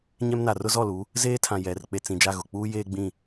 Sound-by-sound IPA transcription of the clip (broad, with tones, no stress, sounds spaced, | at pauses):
ɲ ɛ˦ m n a˨ r ʊ˦ z ɔ˦˨ l u˨˦ | z eː˦ tʰ ã˨ j ɛ˨ r k͡p e˨ t͡s ĩ˨ d͡ʒ a˦˨ ɣ ʊ˨ k͡p uː˦ j eː˦ ɡ͡b ĩ˦˨